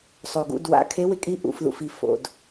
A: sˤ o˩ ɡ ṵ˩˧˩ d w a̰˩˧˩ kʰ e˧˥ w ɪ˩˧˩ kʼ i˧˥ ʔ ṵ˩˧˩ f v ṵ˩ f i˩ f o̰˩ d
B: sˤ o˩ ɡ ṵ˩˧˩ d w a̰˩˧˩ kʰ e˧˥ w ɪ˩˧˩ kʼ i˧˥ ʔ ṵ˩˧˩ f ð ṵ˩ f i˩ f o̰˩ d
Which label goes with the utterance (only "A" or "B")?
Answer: B